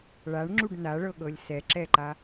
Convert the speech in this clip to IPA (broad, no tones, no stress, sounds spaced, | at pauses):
ɭ a ɳ ŋ͡ǁ u ɖ n a ɭ ɤ ɠ ɤ lʲ s ɛ ǁ ɛ ǃ a